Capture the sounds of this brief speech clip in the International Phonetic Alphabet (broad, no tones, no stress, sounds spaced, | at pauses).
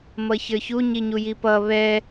m ʌ ç ə˞ ç u ɲ i ɲ u j i p ʌ β ɛ